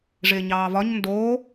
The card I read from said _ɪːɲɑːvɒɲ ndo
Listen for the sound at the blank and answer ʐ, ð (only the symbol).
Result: ʐ